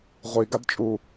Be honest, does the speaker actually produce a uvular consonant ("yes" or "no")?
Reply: yes